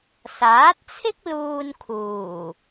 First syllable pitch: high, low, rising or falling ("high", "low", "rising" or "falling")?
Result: rising